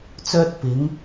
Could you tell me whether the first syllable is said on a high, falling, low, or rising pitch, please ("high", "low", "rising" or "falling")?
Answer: high